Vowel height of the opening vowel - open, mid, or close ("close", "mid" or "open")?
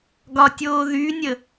open